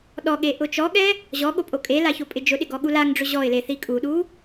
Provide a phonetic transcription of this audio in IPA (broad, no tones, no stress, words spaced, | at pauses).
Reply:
ɗɔɠe ʔʊt͡ʃɔɠɛ | ʑɔ ɠopʼokʼela çopʼɪd͡ʒʊɗɪ ɡɔɠulaŋɖ͡ʐʊ ʑɔɪ̯le θikʼuɗu